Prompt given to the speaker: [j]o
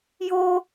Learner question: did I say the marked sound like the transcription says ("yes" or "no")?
yes